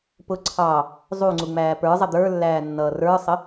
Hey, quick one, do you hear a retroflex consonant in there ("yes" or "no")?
no